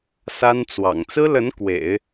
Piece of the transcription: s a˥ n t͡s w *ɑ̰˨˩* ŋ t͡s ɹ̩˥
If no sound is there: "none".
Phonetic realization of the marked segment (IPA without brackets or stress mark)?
ɑ̰˨˩